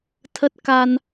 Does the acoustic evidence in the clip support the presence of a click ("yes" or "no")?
no